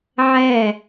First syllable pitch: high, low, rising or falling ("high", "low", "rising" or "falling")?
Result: falling